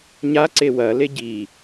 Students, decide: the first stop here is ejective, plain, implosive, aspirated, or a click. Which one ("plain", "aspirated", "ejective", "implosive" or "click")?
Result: click